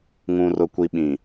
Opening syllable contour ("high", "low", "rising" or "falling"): low